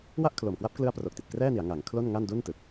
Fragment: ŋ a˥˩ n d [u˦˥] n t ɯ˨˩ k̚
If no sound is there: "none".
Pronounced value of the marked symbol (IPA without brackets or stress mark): u˥˩